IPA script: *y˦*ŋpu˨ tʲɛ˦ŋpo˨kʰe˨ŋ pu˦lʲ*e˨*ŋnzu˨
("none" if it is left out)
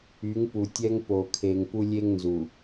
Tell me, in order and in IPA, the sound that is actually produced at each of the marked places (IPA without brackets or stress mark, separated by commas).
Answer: y˨˦, e˦